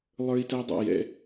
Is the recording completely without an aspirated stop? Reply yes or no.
yes